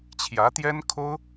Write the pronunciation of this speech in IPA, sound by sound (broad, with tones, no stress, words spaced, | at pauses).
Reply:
t͡ɕʰjä˧˥ t̪jɛ˥nkʰo˥ʊ̯